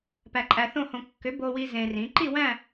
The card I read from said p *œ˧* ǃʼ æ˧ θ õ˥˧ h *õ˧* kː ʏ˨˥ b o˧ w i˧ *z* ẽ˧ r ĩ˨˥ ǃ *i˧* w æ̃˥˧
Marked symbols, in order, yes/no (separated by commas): no, yes, yes, no